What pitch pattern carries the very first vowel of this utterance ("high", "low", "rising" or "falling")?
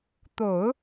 low